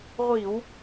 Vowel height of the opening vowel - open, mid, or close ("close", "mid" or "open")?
close